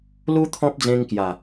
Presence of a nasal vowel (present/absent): present